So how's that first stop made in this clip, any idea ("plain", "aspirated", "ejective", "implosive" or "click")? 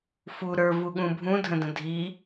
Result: implosive